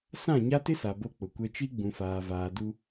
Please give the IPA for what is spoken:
s ã˦˨ ɲ a˦ t ɪ˦ s a˨ b o˦ k͡p ʊ˨ kʷ ɛ˦ t͡ʃ i˦ ɡ͡b ũ˨ f aː˨ v aː˨ d u˦

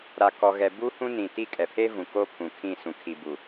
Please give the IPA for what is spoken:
ɾ a˨ k ɔ˨ ɣ ɛ˨ b u˦ h ũ˦ n ĩ˨ t i˦ kʼ ɛ˨ pʰ e˦ v ũ˨ k oː˦ pʰ ũ˨ kʰ ĩ˦˨ s ũ˨ kʰ i˨ b u˨

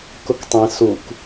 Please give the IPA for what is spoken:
k ʊ k tˤ ẽ s u k

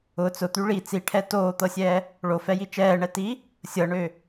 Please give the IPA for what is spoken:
ʊ t͡s ʊ t̪ y ɭ i t͡s i ʈʰ ɛ t oː t̪ ɤ sʲ ɛː | ɭ o f ɛ j i t͡ʃ ɛː ɳ ɛ t i | sʲ ɤ ɳ ø

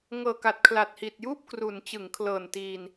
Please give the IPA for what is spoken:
ŋ ɤː˨˩ k a˨˩ t̚ kʰ l a˨˩ t̚ h i˨˩ t̚ j uː˥˩ p̚ k r u˩˦ n t͡ɕ ɯ˩˦ ŋ kʰ l ɤː˨˩ n t iː˧ n

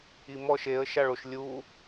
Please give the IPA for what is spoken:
i m ɔ ʃ e ə̯ ʃ a ɭ o ʃ lʲ u

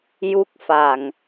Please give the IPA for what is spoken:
j u˦˥ k̚ f a˨˩ ŋ

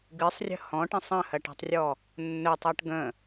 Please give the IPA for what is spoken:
ɡ ɨ sˤ rʲ ə̤ h ɔ̃ ʈ ə̃ sˤ ə̃ h ɜ ʈ ɛ̤ tˤ rʲ ɔ | nː ɵ tˤ ɜ ʈ ɡ ə̃

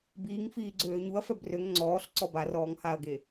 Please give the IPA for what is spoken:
b iː ŋ f iː ɡ͡ǀ øː ɲ u ɐ̯ f œ b r ø ŋ ŋ͡ǀ ɔː ɬ ǀ ɔ b a r ɔː ŋ h a ɐ̯ ɡ e

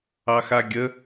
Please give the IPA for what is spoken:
ɑ x a ɡʲ ə

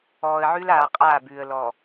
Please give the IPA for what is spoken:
ɔː˨ ə̯ ʕ ʉ˦ l aː˨ qʼ aː˦˨ b ʉː˨ ə̯ l ɔ˨

